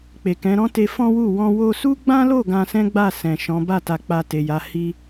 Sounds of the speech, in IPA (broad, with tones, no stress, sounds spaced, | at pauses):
k͡p e˨ k ɛ̃˨˦ ɾ ɔ̃˦ t e˧ f ɔ̃˦ w u˦˨ w ɔ̃˧ w o˧ s u˦ ɡ͡b ã˦ l o˦˨ ɡ ã˧ s ɛ̃˦ ɡ͡b a˦˨ s ɛ̃˨ ʃ ɔ̃˨˦ b a˦˨ t a˨ k͡p a˧ t e˨ j a˨˦ h i˦